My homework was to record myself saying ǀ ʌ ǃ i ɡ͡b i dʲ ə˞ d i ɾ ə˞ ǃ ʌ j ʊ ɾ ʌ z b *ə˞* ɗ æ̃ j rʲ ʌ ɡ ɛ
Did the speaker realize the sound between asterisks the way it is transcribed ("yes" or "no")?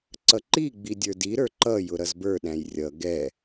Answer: yes